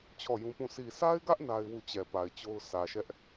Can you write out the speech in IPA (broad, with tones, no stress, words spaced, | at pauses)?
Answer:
t͡ɕʰɔ˦˨jũ˦pũ˦˨ sʰi˨sʰa˦ɪ̯ɡä˦ʔ na˦ɪ̯wu˦˨ t͡ɕɛ˨pa˨ɪ̯ t͡ɕo˦ʊ̯ sʰä˨ʃɛ˦ʔ